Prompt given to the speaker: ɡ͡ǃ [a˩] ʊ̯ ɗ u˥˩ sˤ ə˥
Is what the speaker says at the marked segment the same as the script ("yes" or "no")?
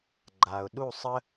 yes